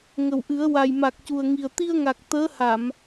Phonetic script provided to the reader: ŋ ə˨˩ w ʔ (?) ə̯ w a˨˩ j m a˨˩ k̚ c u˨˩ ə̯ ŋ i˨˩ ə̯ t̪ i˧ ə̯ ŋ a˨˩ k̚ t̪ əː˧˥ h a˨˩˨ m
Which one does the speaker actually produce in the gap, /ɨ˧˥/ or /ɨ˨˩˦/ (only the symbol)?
ɨ˨˩˦